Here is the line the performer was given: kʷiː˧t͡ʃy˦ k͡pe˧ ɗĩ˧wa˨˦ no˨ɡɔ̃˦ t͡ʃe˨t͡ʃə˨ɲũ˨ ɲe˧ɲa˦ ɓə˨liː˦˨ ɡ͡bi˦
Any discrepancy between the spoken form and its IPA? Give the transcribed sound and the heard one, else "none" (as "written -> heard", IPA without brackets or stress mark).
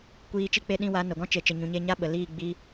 y˦ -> i˦